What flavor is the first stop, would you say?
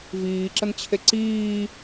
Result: click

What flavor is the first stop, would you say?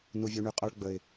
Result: ejective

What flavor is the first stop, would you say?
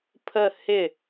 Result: aspirated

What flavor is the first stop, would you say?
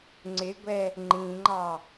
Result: click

